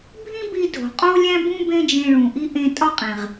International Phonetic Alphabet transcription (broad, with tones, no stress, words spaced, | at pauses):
bʱĩ˥bi˧ dʱo̤˩qʼo˥lʲæ̃˥bũ˥ bẽ˥d͡ʒẽ˧ɭũ˩ʔi˥ ʔẽ˧tʼɒ˥qʼẽ˩ʁ